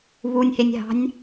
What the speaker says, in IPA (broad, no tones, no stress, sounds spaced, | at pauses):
β u nʲ h e nʲ ɦ ɑ̤ nʲ